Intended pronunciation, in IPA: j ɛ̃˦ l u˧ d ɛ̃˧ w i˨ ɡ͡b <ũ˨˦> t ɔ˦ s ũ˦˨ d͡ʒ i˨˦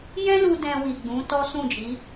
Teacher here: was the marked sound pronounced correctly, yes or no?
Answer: yes